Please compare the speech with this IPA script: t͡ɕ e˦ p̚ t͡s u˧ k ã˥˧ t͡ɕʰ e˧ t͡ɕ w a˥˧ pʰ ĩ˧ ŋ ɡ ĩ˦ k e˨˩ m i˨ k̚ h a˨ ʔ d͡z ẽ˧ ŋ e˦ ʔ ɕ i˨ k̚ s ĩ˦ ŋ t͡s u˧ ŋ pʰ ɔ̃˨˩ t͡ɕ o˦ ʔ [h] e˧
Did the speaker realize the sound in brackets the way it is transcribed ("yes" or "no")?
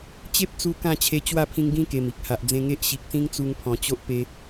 no